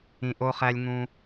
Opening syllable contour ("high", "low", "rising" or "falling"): low